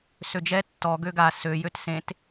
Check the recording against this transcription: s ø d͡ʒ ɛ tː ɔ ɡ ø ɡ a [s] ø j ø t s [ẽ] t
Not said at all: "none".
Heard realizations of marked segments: s, ẽ

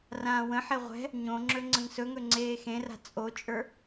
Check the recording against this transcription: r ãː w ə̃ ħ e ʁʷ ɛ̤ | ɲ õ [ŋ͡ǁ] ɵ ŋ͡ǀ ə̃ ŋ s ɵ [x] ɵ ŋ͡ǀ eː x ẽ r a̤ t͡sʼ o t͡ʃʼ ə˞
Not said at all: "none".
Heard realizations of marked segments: ŋ͡ǁ, ŋ

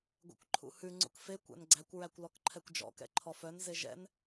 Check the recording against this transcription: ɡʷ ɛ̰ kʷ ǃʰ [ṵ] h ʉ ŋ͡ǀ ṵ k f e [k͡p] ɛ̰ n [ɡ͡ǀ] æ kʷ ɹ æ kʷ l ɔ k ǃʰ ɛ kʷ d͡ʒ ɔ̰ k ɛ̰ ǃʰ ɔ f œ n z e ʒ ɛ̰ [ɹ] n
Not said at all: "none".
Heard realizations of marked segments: ṵ, kʷ, ɡ͡ǀ, none

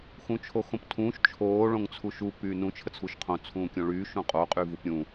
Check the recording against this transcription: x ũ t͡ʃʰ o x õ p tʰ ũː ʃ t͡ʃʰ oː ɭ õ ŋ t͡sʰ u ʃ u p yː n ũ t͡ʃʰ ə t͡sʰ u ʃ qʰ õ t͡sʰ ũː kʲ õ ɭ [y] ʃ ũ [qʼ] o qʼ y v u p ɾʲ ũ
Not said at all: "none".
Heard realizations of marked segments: yː, qʼ

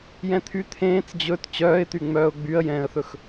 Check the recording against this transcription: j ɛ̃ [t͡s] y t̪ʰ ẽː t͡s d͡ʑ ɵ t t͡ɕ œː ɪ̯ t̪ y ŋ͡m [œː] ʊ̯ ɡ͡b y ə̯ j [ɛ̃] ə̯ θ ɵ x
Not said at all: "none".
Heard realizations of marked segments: t̪ʰ, œː, ɛ̃ː

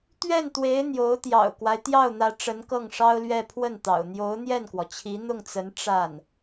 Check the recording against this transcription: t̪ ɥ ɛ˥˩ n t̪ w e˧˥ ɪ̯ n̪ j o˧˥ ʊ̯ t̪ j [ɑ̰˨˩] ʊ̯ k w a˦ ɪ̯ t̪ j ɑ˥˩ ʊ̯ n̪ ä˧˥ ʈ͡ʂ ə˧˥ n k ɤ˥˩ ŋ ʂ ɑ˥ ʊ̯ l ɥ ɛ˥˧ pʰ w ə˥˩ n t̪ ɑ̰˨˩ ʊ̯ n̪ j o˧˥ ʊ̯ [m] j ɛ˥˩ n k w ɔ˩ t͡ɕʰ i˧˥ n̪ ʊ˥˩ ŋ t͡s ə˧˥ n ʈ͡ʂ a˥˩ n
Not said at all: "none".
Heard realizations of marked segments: ɑ̰˨˩, n̪

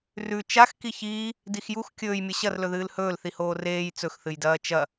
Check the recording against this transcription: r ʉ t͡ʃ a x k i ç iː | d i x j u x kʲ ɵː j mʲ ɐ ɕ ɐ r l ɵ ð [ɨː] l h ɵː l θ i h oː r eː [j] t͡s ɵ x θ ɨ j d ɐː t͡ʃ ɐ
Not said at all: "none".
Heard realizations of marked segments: ɨː, j

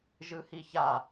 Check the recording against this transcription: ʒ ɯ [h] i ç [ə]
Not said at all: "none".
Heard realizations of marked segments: h, a

